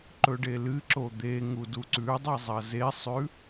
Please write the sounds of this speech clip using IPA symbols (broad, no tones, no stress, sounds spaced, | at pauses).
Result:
ǃ ɵ ɖ e l ɨ ǁ o d̪ e ŋ u d u ǀ ʉ dˤ i zˤ ɐ z e sˤ ʉ